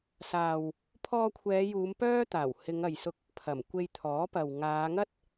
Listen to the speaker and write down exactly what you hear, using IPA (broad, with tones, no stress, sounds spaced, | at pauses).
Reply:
s aː˨ w | pʰ ɔː˧ kʷʰ ɛː˨˧ j uː˨˧ m p œː˥ t̪ aː˨˩ w h ɪ˨˧ ŋ ɐ˨ j s ʊ˧ k̚ | pʰ ɐ˨˩ m kʷ e˧ j t̪ʰ ɔː˨˥ p ɐ˨ w ŋ aː˨˧ ŋ ɐ˥ t̚